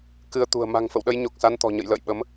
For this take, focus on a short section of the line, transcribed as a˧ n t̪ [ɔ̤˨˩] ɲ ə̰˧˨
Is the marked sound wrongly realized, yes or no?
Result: no